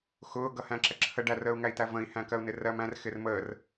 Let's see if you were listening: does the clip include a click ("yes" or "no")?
yes